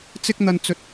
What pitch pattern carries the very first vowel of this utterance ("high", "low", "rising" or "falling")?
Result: high